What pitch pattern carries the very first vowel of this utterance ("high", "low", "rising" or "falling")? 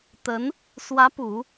rising